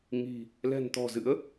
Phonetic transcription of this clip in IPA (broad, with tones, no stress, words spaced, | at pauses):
ŋi̤˨˩ | lɛ̤˨˩nt̪ɔ̤˨˩zɨ̰˧˥ə̯